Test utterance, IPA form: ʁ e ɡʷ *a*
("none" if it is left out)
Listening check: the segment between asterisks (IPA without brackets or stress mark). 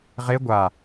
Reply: a